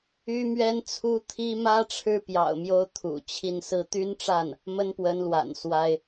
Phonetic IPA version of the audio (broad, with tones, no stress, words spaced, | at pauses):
y˥mɥɛ˥n t͡sʰu˥t̪ʰi˥ mä˥ʈ͡ʂʰɻ̩˥˩pjɑ̰˨˩ʊ̯ mjo˥ʊ̯t̪ʰṵ˨˩t͡ɕʰi˥˩n sɹ̩˧˥t̪y˥nʈ͡ʂa˥˩n | mə˥npwə˧˥nlwa̰˨˩n swa˥ɪ̯